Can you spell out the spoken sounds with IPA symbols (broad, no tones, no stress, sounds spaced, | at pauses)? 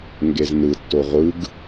ŋ ɡ e z n ɯ tː o ʁʷ ɯ ɡ